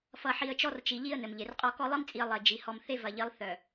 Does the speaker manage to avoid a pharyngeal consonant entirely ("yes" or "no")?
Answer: no